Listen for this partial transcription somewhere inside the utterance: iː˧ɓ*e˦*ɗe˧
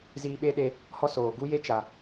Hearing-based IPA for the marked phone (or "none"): e˦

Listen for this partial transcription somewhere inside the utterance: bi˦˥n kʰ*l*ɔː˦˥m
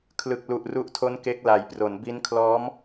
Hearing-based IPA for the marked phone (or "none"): l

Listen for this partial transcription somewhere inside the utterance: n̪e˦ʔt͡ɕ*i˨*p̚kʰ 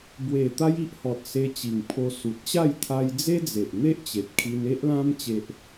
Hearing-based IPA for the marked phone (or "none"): e˨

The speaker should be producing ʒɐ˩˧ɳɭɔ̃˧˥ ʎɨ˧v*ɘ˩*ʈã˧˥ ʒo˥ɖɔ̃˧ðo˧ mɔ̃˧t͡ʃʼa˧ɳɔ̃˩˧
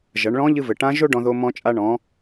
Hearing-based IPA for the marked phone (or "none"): ɘ˩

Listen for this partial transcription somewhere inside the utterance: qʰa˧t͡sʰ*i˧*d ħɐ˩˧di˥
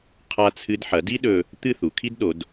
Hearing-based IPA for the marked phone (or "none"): ɨ˧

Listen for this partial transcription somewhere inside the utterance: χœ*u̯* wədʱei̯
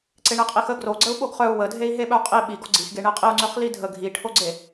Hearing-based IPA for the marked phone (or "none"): u̯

